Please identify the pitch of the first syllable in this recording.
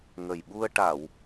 low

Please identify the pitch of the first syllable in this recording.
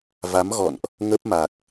rising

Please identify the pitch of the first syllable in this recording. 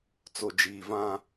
low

